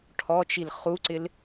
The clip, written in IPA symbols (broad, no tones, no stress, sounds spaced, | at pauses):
ʈʰ ɔ t͡ʃ i l χ u ǀ ɪ l